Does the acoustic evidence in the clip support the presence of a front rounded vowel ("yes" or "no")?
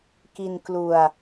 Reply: no